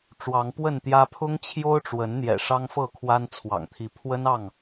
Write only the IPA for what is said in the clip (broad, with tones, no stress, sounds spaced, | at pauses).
ʈ͡ʂ w ɑ˨˦ ŋ p w ə˥˨ n t̪ j ä˦ pʰ ʊ˦ ŋ t͡ɕʰ j o˦ ʊ̯ ʈ͡ʂ w ə˨˦ n n̪ j ɛ̰˨˩ ʂ ɑ˦ ŋ f ɤ˥˨ kʰ w a˦ n t͡sʰ w ɑ̰˨˩ ŋ t̪ʰ i˨˦ pʰ w ə˦ n ɑ˥˨ ŋ